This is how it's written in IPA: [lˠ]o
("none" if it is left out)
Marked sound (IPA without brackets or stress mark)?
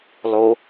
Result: lˠ